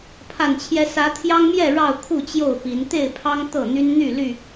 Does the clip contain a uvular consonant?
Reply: no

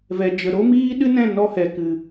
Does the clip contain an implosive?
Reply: yes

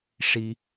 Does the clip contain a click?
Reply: no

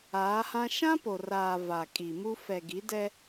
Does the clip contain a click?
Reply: no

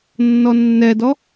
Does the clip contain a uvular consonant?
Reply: no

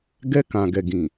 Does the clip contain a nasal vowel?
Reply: yes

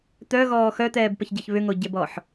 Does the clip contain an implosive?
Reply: no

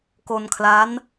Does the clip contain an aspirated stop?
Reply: yes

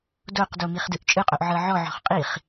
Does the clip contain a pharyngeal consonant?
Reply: yes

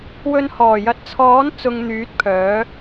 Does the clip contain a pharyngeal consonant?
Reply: no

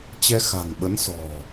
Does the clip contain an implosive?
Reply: yes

